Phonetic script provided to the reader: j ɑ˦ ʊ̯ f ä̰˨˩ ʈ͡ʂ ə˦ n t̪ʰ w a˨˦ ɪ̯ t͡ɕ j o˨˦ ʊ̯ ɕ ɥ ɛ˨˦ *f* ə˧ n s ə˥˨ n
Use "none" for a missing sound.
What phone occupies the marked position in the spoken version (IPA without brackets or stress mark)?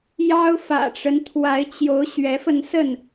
f